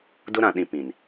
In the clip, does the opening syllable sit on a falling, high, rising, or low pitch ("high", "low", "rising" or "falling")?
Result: high